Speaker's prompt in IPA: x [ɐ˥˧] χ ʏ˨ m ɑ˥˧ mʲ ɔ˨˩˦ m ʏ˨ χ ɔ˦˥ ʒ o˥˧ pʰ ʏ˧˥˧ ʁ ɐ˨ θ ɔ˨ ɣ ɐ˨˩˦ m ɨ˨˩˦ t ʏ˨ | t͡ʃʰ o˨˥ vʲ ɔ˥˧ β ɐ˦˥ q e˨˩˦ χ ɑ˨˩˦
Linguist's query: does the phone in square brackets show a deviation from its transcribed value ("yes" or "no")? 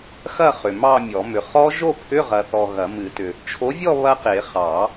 no